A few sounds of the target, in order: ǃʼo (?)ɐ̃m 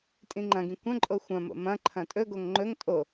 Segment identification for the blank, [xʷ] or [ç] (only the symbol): xʷ